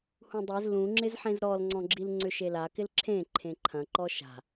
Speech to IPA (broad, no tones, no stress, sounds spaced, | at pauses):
h ũ dˤ e z l ũ ŋ͡ǁ ɪ z ħ ẽ z ɾ ɔ l ŋ͡ǀ ɔ̃ ɡ͡ǁ i l ŋ͡ǀ ʏ ʃ e l a k ɪ l ǁʰ ẽ ǃʰ ẽ ǃʰ ɐ̃ ǃ ɔ ʃ a̤